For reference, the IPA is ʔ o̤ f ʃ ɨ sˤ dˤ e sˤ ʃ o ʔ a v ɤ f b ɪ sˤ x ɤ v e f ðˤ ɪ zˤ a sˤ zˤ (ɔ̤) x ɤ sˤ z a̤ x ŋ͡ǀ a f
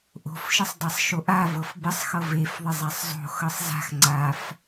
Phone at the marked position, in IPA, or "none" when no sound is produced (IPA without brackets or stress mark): o̤